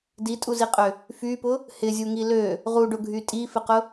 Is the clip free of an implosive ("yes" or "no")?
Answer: yes